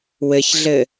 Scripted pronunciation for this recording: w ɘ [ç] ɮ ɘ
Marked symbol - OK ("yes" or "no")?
yes